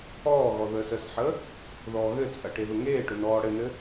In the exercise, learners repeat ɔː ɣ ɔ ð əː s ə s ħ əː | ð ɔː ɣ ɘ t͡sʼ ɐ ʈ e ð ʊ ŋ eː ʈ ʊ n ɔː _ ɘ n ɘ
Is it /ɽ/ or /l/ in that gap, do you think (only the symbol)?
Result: ɽ